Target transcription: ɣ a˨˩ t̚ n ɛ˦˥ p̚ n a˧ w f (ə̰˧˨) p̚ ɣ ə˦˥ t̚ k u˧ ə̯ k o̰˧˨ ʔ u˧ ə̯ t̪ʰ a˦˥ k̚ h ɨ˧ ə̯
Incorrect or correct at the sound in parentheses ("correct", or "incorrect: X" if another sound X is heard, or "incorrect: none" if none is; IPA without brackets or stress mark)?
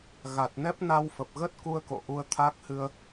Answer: incorrect: ə˨˩